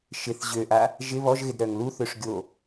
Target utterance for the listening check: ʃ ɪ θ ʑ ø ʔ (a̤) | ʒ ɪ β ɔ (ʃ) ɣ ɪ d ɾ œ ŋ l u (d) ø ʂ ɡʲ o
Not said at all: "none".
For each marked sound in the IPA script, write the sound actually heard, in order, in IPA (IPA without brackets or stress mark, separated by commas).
a, ʒ, θ